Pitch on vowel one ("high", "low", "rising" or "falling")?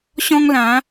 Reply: high